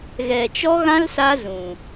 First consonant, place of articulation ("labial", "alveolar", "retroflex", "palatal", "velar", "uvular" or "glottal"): velar